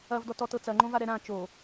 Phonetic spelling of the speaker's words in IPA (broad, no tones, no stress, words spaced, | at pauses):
ɐvdɔtɔ tɤt͡sɐŋ͡ǃõva ɾɛɾã t͡ʃo